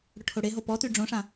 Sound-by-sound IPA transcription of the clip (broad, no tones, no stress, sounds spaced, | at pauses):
ɽ ʊ ʈʰ o ɽ e ɦ o p ɔ t y ɖ͡ʐ õ ʂ ã